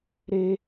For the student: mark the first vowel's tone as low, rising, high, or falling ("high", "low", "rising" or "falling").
high